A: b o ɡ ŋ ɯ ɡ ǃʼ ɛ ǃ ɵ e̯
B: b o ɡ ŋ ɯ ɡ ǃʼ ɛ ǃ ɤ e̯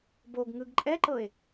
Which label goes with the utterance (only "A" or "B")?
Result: B